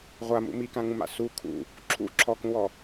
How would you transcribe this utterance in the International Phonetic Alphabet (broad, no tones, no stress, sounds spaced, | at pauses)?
ʁʷ a m ṵ m i k ã ŋ ũ m a̰ s u kʰ ṵ | ǁʰ ṵ ǁʰ ɔ k ũ w ɔ